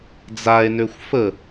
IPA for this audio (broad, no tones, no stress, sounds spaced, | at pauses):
d͡z a e̯ n ø xʷ f ə